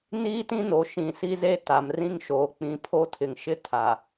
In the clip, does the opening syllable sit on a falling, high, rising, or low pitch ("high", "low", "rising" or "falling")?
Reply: high